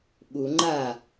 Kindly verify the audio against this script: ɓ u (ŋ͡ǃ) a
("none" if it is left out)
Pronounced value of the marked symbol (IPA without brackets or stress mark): ŋ͡ǃ